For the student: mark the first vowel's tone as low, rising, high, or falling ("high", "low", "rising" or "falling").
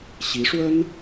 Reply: rising